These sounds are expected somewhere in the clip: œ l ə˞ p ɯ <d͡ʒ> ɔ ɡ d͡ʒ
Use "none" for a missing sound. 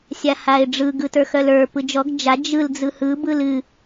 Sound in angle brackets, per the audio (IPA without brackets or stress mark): d͡ʒ